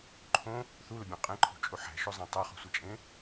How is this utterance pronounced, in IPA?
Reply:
ǃʰ õ | θ u l ʊ bʲ ɔ̃ qʼ ẽ ǃʰ ṳ t͡ʃʼ u ħ æ̤ ʃ o zˤ æ̃ tˤ a χ ṳ sʷ a t͡ʃʼ ẽ

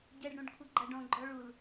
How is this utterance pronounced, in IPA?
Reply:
ɟ ɛ ɖ ɽ ũ ɖ kʷʰ ʌ ɡ͡ǃ a ɖ ɔ̃ ɡ͡ǃ ɔ ɭ u l

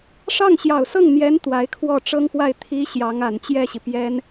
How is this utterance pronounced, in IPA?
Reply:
ʂ ɑ˥˩ ŋ ɕ j ɑ˨˩ ʊ̯ s ɤ˥˩ ŋ n̪ j ɛ˧˥ n t̪ w a˧˥ ɪ̯ kʰ w ɔ˥˩ ʈ͡ʂ ɤ˥ ŋ x w a˥˩ ɪ̯ t̪ʰ i˧˥ ɕ j ɑ˧˥ ŋ a˨˩ n t͡ɕ j ɛ˥˩ ɕ i˩ p j ɛ˥ n

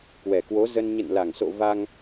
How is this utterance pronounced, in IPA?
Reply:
k w ɛ˨˩ k w o˨˦ z ə˧ n ɲ ə̰˧˨ n l a˨˩ ŋ s o̰˧˨ v a˧ ŋ

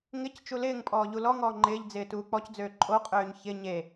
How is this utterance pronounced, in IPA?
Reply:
ŋ ɪ c t͡ʃ u l ɪː ŋ pʼ ɔː ʎ u l ɔ ŋ ɔː ŋ͡ǃ ɪː ʎ d͡z ɪː t uː k͡p ɔ c d͡z øː ǃʼ o qʼ øː ɲ ç ɪ ɲ e

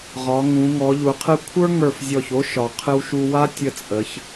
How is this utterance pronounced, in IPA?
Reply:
ʁ ɒ˩˧ ŋ ũ˩˧ ŋ ɔ˩˧ ʎ u˩˧ qʰ ɨ˧ kʷʰ ə˞˥ ŋ ə˞˧˩ f zʲ ɔ˧˩ ç o˥ ʃ ɒ˩˧ qʰ ɨ˧ w ʃ u˧ w a˥ tʲ ə˧ t͡sʼ ə˩˧ ç

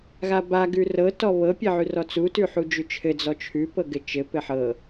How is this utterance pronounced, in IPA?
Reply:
ɣ a b a ɡ ʉ r ɤ t ɔ β ɤ pʲ ɘ ʕ ʉ r ɔ t͡s u t ʉ ħ u d͡ʒ ʉ t͡ʃʰ ɘ d͡z ɔ t͡ʃʰ ʉ p ɤ ɡ ɘ t͡ʃ ɘ p ɘ ħ ɤ

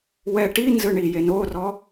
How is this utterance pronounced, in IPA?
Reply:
w ɛ ʈ i n z ɯ ɳ i j e n o r ɔ

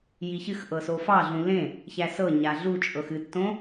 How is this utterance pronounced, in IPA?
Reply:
j i ç ɨ x ʔ ɤ s o f ɑ ɮ ũ l ẽ | ç æ s ɤ ɲ a ɮ u t͡ʃʼ ɤ x ɨ tː õ

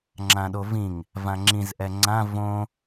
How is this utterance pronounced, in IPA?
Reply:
ŋ͡ǁ ã ɗ o v ĩ ŋ | v ã ŋ͡ǁ ĩ z ʔ ɛ ŋ͡ǀ ã v õ

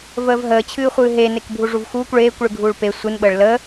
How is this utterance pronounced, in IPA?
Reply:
v əː v ɦ əː t͡ɕʰ ɨː χʷ ɨː ɦ e n e k bʱ u ʐ u v x uː kʷ ɭ eː kʷ ɭ ɨ ɡʱ uː ɭ p e sʷ ɨ n ɓ əː ɭ l ə

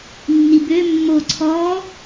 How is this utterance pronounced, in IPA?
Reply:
nː i b ø mː o ǀʰ ɔ

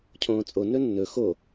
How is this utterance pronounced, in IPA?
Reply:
cʰ õː t͡sʼ o n ɵ nː ɵ x o

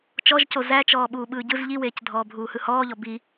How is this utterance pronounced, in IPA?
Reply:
t͡ʃ ɔ ʒ c o z æ t͡ʃ ɔː ɓ uː ɓ ɯː ɟ ɯ z ʎ i w eː c dʱ ɔː bʱ uː h ɯ h ɔː ʎ ɔ b i

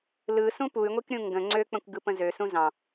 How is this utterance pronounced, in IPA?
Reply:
l ɯ s ũ p u y̯ ŋʷ i k ɾʲ ũ ŋ ɡ ə̃ ŋ͡ǀ ø k͡p ə̃ kʷ ɡ ɯ p ə̃ z ø s ũ z ɑ̃

